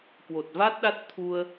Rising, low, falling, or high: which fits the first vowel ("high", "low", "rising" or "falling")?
low